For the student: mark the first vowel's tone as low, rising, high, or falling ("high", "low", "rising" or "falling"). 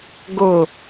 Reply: falling